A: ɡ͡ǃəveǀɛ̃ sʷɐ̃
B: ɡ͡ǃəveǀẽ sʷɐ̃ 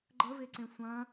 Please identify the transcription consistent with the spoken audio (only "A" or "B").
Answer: B